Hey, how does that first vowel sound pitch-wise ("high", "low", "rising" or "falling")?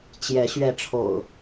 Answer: rising